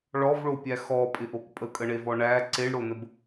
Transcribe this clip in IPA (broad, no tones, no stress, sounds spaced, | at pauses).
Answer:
ɭ ɔ v ɭ o pʲ æ x ɔ pʼ ɪ ʔ o k pʼ ə kʼ ə ɳ e v ɔ ɳ æ ǀ e ɳ ɽ o n ə b